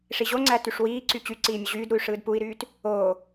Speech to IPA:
ʂ i ʑ o ŋ͡ǀ æ t y ʂ w iː ǀ y t͡ɕ y ǀ iː mʲ u ʑ yː d ɾ u y̯ ʂ ɯː d p u i̯ ɾ yː t | oː

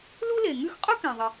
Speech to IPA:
l u˥ l e˩ ŋ ʉ˥ x qʼ ʊ˥ k ɛ̃˩ ðˤ ə˩

